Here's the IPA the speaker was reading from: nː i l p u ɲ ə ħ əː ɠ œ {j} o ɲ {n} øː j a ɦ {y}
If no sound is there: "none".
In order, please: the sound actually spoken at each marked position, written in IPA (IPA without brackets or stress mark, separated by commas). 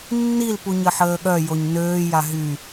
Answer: j, n, y